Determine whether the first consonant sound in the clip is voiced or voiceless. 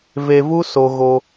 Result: voiced